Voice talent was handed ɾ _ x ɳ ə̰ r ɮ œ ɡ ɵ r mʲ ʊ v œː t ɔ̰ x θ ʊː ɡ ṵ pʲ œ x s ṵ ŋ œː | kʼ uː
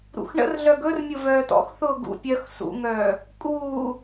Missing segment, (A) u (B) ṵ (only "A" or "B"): B